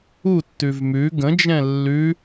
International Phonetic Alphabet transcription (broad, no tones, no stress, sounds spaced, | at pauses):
u tː ʉ v m ʉ ɡ ə̃ d͡ʒ ɛ̃ lː ʉ